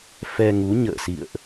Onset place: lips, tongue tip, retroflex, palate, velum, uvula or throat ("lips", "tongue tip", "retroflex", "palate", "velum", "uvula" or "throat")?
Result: lips